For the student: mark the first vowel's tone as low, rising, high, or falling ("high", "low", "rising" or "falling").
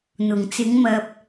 low